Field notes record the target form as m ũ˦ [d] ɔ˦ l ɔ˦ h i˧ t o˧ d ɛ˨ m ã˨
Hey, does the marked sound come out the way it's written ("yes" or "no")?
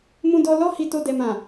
yes